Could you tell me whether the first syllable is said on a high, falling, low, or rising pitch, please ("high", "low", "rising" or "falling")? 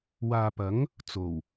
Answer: low